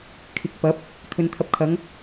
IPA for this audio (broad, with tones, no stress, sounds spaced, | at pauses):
kʰ ɪ˨ k̚ p ɐ˨˥ p̚ | t̪ʰ ɵ˨˧ n t̪ʰ ɐ˧ p̚ kʰ ɐ˨˥ ŋ